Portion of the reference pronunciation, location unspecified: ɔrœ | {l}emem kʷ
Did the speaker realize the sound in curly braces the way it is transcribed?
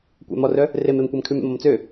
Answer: no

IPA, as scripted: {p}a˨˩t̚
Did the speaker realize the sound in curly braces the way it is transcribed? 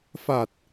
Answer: no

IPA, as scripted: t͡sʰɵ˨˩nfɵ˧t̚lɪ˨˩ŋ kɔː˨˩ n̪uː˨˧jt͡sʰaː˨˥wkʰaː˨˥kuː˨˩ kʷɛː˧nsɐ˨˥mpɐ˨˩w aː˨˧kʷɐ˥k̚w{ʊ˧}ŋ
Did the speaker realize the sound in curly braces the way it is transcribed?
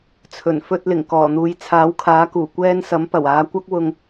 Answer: yes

